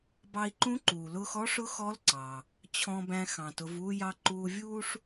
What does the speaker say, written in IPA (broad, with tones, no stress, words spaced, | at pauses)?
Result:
bɑ˧i̯ǃũ˧˥ǃuː˩lʊː˧x ɔ˧˥ʂʊ˧˥ xɔ˧˥l ǀɑ˩ | t͡ɕʰɔ̃˧bæ̃˧ xɑ̃˩tʊ˩˧v uː˧jɑ˧ ǃuː˧vʲuː˥ʂ